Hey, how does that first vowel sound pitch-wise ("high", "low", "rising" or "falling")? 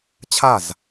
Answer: falling